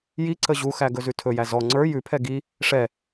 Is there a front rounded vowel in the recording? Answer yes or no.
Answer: no